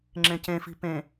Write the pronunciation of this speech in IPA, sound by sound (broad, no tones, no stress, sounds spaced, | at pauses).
ŋ͡ǁ ẽ c ẽ f i̤ p ẽ